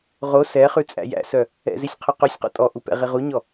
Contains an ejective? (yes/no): yes